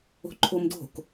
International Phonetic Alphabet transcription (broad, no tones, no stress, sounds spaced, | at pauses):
o̤ ǃʰ o m d o̤ k